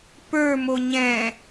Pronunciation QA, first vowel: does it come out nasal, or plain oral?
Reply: oral